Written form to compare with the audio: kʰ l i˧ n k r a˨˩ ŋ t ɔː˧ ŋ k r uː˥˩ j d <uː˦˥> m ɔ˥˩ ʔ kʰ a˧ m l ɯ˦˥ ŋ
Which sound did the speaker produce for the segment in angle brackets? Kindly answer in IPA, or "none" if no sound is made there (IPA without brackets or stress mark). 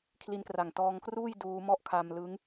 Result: uː˦˥